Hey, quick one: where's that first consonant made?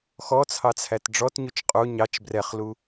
velum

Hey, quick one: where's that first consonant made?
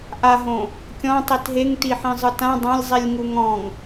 throat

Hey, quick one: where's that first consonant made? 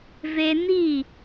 lips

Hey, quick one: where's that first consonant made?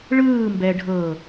retroflex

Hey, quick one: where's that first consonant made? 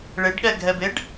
retroflex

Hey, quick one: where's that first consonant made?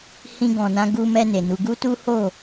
throat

